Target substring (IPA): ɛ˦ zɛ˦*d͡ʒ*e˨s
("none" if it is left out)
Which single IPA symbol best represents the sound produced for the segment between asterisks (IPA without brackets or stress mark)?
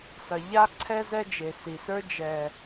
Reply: d͡ʒ